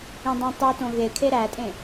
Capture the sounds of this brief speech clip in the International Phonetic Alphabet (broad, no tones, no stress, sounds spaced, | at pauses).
ĩ dˤ ẽ tˤ u t õ ɣ e kʰ e ɾ æ tʼ ẽ